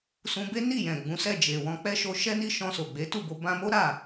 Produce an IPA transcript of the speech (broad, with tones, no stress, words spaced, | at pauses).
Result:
sũ˧be˦ni˦˨ jɛ̃˨ɡ͡bũ˨˦sɛ˦˨ d͡ʒe˨wɔ̃˧ k͡pɛ˦ʃo˧ʃɛ˦ ni˦ʃɔ̃˧so˨ɡ͡be˨˦ tu˦˨bo˧ bã˧mo˦ ɾa˦˨